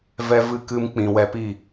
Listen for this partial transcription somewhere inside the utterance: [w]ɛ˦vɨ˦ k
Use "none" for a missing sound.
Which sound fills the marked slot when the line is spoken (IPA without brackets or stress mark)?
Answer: v